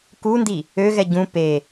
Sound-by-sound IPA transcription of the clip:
kundi | øɣɛ ɟũ pe

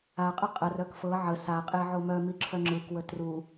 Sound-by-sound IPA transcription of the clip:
aqʼə qʼər œkfɤ ʕə saqʼe ʕomœmi ǁʰœŋ͡ǁɯkwə tru

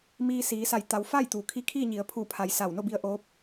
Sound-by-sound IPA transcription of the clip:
miː˧siː˩˧sa˧˩j t̪a˩˧wfa˥˨j t̪uː˩kʰi˧˥kʰiː˥˨ɲi˩˧ə̯ pʰu˧˩pʰa˩j sa˧˩w no˥˨bi˧ə̯ ʔo˧˥p̚

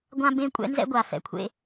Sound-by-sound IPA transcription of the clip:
ɡʷã˥bẽ˥ kʷʼɛ̰˥nzɛ̰˥ɡʷa˩ fɛ̰˩kʷʰḛ˧

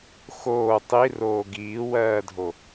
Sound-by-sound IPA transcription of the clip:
xoː tˤiroː ɡiːwɜːdʱo

